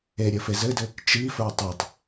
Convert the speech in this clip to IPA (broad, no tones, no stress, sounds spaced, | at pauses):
e ɾʲ ɘ f e z ɘ d ɘ | t͡ʃ i f ə˞ tˤ e tˤ